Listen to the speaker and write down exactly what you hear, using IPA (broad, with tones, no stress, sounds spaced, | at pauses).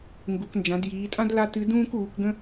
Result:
ŋ ɡ u˩˧ k n d͡ʒ ã˩˧ d j iː˩˧ tʼ ã˥ d l a˥ t ɨ˧˥ d ũː˥ k uː˩˧ k ɡ ə̃˥